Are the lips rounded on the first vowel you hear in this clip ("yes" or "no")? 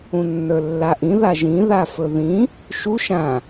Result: yes